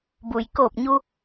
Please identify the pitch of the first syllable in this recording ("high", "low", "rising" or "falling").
low